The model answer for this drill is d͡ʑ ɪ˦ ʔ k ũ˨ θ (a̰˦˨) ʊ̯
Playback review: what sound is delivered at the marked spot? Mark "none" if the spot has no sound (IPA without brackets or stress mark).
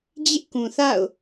a̰˦˨